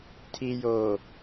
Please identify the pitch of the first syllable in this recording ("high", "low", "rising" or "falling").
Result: low